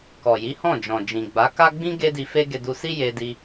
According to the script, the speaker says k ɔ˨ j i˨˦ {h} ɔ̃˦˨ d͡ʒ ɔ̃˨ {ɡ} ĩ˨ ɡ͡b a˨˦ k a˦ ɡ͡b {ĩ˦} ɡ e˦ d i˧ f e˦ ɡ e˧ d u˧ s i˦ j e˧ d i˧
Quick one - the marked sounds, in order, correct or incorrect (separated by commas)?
correct, incorrect, correct